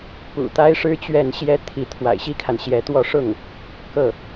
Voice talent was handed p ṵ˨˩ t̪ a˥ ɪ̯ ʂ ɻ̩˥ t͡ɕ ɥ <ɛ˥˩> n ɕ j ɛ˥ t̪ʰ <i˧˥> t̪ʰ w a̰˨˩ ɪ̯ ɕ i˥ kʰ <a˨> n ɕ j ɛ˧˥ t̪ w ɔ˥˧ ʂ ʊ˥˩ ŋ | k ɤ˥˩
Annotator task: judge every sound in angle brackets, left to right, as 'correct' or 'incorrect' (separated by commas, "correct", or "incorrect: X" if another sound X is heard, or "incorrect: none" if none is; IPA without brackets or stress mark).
correct, correct, correct